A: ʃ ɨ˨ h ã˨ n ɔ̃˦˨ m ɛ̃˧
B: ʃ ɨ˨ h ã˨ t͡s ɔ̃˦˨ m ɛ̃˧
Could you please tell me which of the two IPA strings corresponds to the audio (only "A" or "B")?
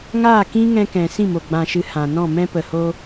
A